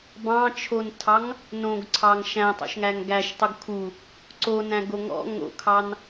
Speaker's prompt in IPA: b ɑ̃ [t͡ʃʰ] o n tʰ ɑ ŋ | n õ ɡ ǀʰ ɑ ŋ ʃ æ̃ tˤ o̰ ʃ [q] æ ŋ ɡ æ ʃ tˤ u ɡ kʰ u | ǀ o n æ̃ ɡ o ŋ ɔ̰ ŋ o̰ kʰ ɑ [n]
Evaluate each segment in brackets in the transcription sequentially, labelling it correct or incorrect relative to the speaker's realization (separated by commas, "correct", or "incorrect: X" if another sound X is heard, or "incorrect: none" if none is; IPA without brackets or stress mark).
correct, incorrect: ŋ, correct